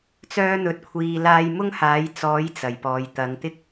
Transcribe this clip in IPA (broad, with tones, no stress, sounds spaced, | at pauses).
t͡s œː˥ n̪ ɵ˧ t̚ kʷʰ iː˧ l aː˧ j m ʊ˥ ŋ h aː˨˥ j t͡s ɔː˨˥ j t͡s ɐ˨˩ j p ɔː˨ j t̪ ɐ˨˧ ŋ t̪ ɪ˧ k̚